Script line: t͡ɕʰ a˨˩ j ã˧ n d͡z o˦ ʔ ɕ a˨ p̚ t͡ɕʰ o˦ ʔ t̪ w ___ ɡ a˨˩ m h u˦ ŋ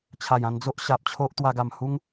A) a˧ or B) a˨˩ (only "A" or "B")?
A